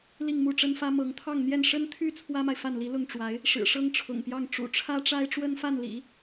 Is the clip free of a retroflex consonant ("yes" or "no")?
no